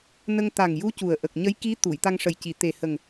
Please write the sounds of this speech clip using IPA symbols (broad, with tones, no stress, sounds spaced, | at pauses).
n ə˧ ŋ t̪ a˨˩ ŋ j u˧˥ c u˨˩ ə̯ ʔ ə˨˩ k̚ ɲ ə˧˥ j k i˧˥ t̪ u˨˩˨ j t̪ a˧ ŋ ʂ ə˨˩ j c i˨˩˨ t̪ e˨˩ h ə˨˩ ŋ